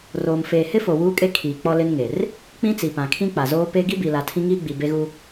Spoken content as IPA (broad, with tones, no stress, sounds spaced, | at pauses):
r oː˨ m f eː˨ h ɪ˦ f o˨ w uː˦ kʼ e˦ kʰ iː˨ k͡p ɔ˦ l ɪ˦ n ŋ e˨ r | k͡p ĩ˦ t͡s i˨ p ã˨ kʰ ĩ˦ k͡p a˨ z oː˦ p e˦ ɡ i˦ b i˨ l a˨ tʰ ĩ˦ ŋ iː˦ ɡ͡b i˨ b e˦ ɣ u˦